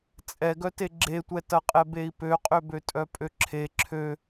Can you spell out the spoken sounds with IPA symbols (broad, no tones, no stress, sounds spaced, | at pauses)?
t͡sʼ ɛ ɡ œ t e ɡ͡ǁ e tʷ ɛ t ɐ qʼ ɛ b e i̯ p ø qʼ ø b ø tʼ œ pʼ ø ǁʰ e ǁʰ ø